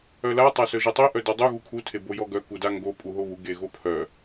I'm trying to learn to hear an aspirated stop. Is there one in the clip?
yes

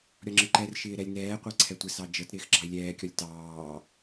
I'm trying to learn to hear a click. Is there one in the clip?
yes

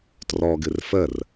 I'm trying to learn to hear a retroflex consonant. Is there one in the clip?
no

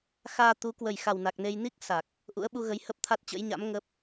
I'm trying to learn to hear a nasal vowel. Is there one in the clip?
no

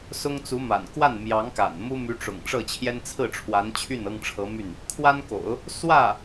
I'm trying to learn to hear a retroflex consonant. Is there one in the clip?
yes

